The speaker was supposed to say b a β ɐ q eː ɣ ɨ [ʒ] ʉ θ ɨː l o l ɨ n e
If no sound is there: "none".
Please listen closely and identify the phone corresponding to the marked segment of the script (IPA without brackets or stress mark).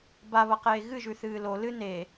ʒ